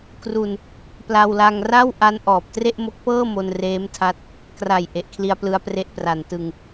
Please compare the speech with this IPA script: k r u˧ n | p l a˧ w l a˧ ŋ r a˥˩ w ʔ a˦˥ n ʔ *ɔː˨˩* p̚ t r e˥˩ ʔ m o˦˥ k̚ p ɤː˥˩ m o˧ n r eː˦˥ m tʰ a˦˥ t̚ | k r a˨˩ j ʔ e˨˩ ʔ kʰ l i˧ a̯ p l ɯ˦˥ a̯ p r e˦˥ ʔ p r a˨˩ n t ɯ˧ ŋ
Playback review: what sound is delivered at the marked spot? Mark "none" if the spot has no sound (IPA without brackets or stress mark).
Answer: ɔː˨˩